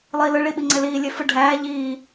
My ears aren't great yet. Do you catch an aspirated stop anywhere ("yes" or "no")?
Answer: no